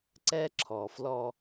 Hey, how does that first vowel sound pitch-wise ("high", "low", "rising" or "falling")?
high